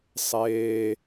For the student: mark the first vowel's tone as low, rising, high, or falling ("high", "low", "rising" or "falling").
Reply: low